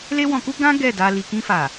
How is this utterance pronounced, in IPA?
l e˦ w ɔ̃˧ k u˦ ɡ ã˦ ɡ ɛ˦˨ d a˧ l i˨ k ĩ˧ f a˨

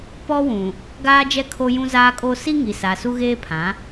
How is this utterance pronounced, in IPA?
p ɔ˦ w ũ˨ | ɡ aː˦ d͡ʒ ɛ˦ kʰ o˦ j ũ˦ z aː˦ kʼ o˦ s i˦ ŋ i˨ s a˨ s u˦ ɣ eː˦ pʰ ã˨˦

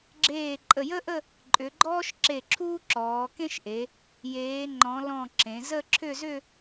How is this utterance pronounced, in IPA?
ɡ͡ǁ eː˧˩ ǃʼ ə˧˩ j ə˥ ʔ ə˥˧ | ǃʼ ʏ˩˧ ɡ͡ǃ ɔː˥ ʃ ǁ e˧˩ ǁʰ uː˥ ǁ ɔː˩˧ k ẽ˥ ʃ ʔ e˩˧ | j eː˩˧ ŋ͡ǃ ɔ̃˩˧ l ɔ̃˧˩ ǁ ẽ˩˧ z ə˥˧ ǁʰ ʏ˥˧ z ʏ˥˧

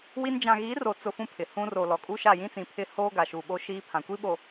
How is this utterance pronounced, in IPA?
w i˦ n d͡ʒ ã˨ ɣ i˨˦ r o˨ t͡s ʊ˦ f ũ˦ pʰ ɪ˨ h ũ˦ r o˨ l ɔ˨ kʼ u˦ ʃ a˦˨ j ĩ˦ t͡s ĩ˨ pʰ ɪ˦ h oː˦ ɡ a˨ ʃ u˨ ɓ o˦ ʃ i˦ pʰ ã˨ kʷ i˦ ɓ o˨

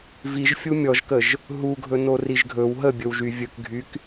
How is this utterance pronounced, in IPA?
v i ʒ fʲ u mʲ ɔ ʒ k ə ʒ | ɦ u ɡʱ ɵ n o r i ʒ ɡʱ ɵ w ɦ ə bʲ ɵ w ʒ y vʲ ɵ k ɡʱ y k

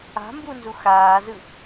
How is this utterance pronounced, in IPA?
a̤ m b u n z u x aː z ɯ

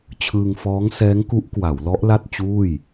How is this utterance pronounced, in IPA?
t͡ɕʰ ɯː˧ ŋ f ɔː˦˥ ŋ s ɛː˦˥ ŋ k u˦˥ ʔ k w a˩˦ w l ɔ˦˥ ʔ l a˥˩ t̚ t͡ɕ uː˥˩ j

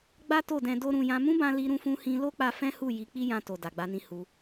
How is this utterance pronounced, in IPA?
ɡ͡b a˦ t o˦˨ d ɛ̃˧ d o˦ ɾ ũ˧ j ã˦ m ũ˦ b ã˧ l i˧ ɾ ũ˧ f ũ˧ h ĩ˧ l o˦ k͡p a˧ f ɛ̃˦ h u˦˨ j i˨˦ k͡p i˦ j ã˧ t o˨ d a˨ ɡ͡b a˧ n ĩ˧ h u˧

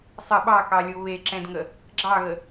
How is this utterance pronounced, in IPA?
sˤ ə ɓ ɑ k ɑ lʲ o β e ǁ ɛ̃ d ŋ ə | ɡ͡ǁ ɑ ɣ ə

